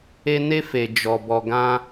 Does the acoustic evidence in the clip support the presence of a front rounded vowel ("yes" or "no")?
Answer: no